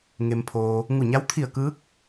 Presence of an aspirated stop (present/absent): present